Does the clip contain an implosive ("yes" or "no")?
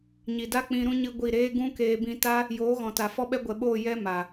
yes